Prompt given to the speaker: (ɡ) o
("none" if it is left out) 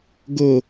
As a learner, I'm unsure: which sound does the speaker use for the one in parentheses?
ɡ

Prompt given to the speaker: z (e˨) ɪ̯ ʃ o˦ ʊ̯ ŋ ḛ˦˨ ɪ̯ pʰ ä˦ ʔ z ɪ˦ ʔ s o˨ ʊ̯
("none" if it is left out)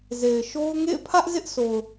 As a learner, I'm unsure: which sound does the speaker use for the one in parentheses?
e˨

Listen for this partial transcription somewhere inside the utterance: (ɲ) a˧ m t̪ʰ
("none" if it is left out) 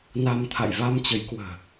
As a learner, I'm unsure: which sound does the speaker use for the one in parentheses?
n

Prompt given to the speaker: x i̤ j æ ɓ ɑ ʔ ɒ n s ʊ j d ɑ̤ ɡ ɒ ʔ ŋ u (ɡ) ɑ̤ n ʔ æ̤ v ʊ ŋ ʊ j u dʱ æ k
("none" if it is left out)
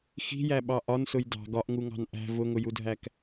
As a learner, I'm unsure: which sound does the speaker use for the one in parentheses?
ŋ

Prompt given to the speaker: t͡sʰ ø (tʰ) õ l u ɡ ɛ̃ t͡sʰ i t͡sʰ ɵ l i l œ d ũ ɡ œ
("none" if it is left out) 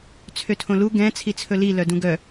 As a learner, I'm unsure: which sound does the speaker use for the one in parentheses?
tʰ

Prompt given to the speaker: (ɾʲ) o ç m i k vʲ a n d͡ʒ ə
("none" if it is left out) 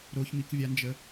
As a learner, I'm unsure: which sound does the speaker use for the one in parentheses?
ɾ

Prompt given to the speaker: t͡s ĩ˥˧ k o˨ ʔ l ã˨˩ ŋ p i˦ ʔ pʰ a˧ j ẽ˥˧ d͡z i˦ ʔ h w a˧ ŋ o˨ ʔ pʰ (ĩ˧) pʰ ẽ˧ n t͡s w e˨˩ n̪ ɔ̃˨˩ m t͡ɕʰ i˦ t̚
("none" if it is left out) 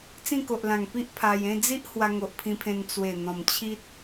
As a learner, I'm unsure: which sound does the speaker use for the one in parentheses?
ĩ˧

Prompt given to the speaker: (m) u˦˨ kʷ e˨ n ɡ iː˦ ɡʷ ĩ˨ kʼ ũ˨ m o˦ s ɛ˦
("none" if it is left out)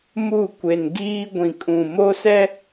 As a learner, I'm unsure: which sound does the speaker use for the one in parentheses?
m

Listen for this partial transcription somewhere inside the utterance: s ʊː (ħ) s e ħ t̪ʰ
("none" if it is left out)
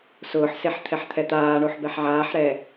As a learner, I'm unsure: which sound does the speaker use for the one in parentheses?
ħ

